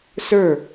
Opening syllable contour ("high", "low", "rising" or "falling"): falling